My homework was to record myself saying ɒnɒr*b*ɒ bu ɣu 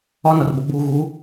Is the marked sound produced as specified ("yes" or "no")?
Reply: yes